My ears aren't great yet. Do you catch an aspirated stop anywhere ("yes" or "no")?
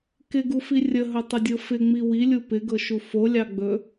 no